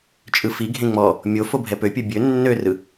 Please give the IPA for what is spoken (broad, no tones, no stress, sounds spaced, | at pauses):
t͡ʃʼ ɯ f i ɡʱ ẽ ŋ͡m ɔ | mʲ o f o bʱ ɛ p ø pʲ ɯ bʲ ø nː ø r ɯ